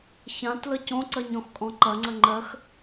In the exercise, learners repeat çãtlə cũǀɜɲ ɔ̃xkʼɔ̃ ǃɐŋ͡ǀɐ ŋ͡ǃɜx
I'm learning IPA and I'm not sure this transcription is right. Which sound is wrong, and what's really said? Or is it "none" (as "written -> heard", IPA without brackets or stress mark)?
ũ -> õ